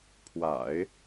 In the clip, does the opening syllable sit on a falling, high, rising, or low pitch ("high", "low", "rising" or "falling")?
low